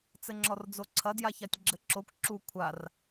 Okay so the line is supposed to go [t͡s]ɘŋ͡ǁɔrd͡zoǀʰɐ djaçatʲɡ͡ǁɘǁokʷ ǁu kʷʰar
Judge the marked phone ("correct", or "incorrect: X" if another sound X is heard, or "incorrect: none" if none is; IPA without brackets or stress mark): correct